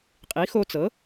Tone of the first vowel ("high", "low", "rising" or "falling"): rising